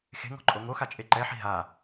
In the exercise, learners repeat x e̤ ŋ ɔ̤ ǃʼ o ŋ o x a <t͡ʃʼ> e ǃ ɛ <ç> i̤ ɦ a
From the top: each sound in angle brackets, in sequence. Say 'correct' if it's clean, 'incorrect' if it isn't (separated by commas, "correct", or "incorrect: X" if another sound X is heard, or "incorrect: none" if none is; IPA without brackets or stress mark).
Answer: correct, incorrect: ħ